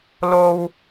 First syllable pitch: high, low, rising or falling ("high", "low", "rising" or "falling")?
high